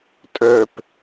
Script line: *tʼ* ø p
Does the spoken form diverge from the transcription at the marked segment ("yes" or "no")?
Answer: no